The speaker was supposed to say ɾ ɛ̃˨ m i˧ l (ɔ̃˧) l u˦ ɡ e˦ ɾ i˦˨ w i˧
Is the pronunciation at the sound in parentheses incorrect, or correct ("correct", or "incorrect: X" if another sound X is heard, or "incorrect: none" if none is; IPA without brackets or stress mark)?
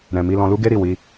correct